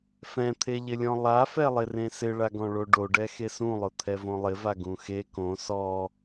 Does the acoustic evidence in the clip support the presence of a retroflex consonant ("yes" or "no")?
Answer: yes